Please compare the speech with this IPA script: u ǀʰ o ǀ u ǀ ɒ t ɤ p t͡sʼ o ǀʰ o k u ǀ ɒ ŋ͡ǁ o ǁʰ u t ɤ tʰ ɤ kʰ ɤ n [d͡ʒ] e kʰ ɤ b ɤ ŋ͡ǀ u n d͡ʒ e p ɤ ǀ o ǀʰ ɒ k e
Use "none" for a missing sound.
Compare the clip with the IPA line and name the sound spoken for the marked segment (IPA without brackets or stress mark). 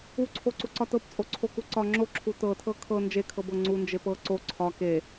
d͡ʒ